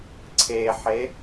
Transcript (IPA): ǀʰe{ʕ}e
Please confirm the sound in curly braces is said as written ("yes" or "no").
no